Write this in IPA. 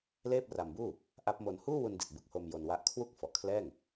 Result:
leː˥˩p̚ra˧mbuː˥˩ | ʔa˦˥p̚mo˧n huː˥˩wu˧ndi˨˩t̚ bɯ˨˩k̚ho˧m jo˧nwa˦˥ʔ kʰwu˥˩k̚ fɔ˨˩ʔkʰlɛː˥˩ŋ

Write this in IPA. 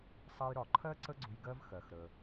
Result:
sˤʌ˧jɾɒ˩ǃʰɜ˥ ǀə˥ɡ͡ǀʊ˧j ɡɜ˥vxɜ˩xɾə˩

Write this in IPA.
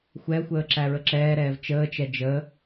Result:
xʷɛxʷəː ǁæɹəǁɛːɾɛːv t͡ʃəːt͡ʃɛ d͡ʒə

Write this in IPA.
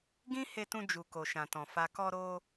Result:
ɡĩ˦ he˧tũ˧ d͡ʒu˨ko˨ʃã˨tɔ̃˨ fa˨kɔ˧ɾo˧

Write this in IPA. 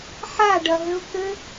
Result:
ħaɖɐɦɘʊ̯ kɘ

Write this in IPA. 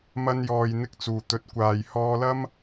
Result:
mɐ˧njɔː˨jn̪ɪ˧k̚ t͡suː˨˩t̪ɵ˨t̚kʷaː˨j hɔː˧lɐ˥m

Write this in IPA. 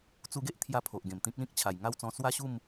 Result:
t͡su˧ɡe˦ʔt̪ʰja˧ pʰo˨ʔɡẽ˨˩mt̪ĩ˦k̚lĩ˦k̚ t͡ɕʰa˨˩jŋa˥˧wt͡sɔ̃˧ swa˥˧ɕu˥˧m

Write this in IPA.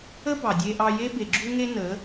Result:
ə˦bɑ˨ dʲe˧ʔɑ˧je˦be˨ ɡ͡ǁu˦ŋe˦ nə˨˦

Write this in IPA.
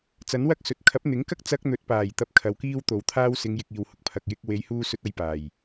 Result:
t͡sɐ˨˥nwɐ˥k̚sɵ˨t̚ kʰɐ˨˥p̚n̪ɪ˨˥ŋkɐ˥k̚ t͡sɐ˧k̚n̪ɵ˨˥t̚ paː˨˩j t̪ɐ˧p̚kʰɐ˨wkiː˥w t̪o˨w t̪ʰaː˥wsɪ˨˧ŋjɪ˨k̚ iː˨whʊ˨k̚ pʰɐ˨k̚jɪ˧k̚ we˨˧jhuː˧sɵ˧t̚ ɐ˧jpaː˨˩j

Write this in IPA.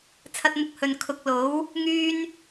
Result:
t͡sʰɐ˧t̚mʊ˧k̚ hɵ˨n kʰʊ˨˥k̚lo˨˥w | ŋyː˥n

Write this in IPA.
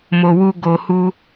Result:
mo˨wu˧ ɡo˨hu˧

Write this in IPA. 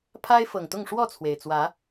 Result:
pʰa˦ɪ̯fɤ˨˩ŋt̪ʊ˥˨ŋ ʂwɔ˥˨t͡sʰwe˩ɪ̯t͡swä˨˦

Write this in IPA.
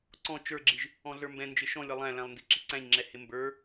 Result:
ǀɔ̃ t͡ʃə˞ɡ͡ǁiʒ | ɔ̃ɮə˞mbɛ̃ nd͡ʒɪʃɔ̃lʲʌ lˠæ̃læ̃lˠndi ǁiǀæ̃ɲŋ͡ǁɛ hɪmbə˞

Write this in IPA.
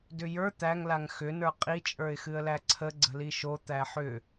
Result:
dʏjə˞ t̪æŋlaŋ xʏnə˞ qʼit͡ʃʼə˞ɪ̯ xɨə̯læǀʰə ɡ͡ǀə̤liʃo t̪æħʏ

